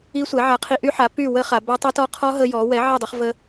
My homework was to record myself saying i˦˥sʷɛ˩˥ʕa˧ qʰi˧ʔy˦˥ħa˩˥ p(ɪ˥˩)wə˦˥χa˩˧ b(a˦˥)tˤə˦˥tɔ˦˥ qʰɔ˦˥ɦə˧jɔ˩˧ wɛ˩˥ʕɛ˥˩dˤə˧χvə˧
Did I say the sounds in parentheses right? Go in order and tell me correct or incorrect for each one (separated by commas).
incorrect, correct